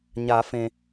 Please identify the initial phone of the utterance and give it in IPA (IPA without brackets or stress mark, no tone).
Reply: ɲ